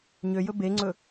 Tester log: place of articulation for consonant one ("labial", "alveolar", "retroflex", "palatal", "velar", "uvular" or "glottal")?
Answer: palatal